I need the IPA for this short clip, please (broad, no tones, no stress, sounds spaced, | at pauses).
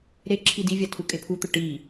ɾ e ǁʰ i d i vʲ a tʰ u kʼ e pʰ u t̪ ʊ ʈ i